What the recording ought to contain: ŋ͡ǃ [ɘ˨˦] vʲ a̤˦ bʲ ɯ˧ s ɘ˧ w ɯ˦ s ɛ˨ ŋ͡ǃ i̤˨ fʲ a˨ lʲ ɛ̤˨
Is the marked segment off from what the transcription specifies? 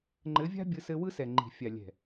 no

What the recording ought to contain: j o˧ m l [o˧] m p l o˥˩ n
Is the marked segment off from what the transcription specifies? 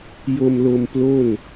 no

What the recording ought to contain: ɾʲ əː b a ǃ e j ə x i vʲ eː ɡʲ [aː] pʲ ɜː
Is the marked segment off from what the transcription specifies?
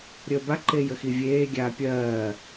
no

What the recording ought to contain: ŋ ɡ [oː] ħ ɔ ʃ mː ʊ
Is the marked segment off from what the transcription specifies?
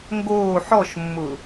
no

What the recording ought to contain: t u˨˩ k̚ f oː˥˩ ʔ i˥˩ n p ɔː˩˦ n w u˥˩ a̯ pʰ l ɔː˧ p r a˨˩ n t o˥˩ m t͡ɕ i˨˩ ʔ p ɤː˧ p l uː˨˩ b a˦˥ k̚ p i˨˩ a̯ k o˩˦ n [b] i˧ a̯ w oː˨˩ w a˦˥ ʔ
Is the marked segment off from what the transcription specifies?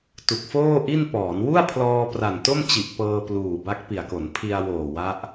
yes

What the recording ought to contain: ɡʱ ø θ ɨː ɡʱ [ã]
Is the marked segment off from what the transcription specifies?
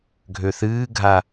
yes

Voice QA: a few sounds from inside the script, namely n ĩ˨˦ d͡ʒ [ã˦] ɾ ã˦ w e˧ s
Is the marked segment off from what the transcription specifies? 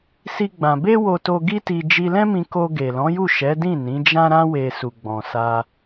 no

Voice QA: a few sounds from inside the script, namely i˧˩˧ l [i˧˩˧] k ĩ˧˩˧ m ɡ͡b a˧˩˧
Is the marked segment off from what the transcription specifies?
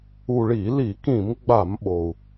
no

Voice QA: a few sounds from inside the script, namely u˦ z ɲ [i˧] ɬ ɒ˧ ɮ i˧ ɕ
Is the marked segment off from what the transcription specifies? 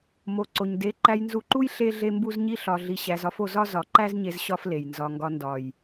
yes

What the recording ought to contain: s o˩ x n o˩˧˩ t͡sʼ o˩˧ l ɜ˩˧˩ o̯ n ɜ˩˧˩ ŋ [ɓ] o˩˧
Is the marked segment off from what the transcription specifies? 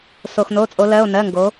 yes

